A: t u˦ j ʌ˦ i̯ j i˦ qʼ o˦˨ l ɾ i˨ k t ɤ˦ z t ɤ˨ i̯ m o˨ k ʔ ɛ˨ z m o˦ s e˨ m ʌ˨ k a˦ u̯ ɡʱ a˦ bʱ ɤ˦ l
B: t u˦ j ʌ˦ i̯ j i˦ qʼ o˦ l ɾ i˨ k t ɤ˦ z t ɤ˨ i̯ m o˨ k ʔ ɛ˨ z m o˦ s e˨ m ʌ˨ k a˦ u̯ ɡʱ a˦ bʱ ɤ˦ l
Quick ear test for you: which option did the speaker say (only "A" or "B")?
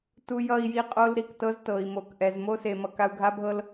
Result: B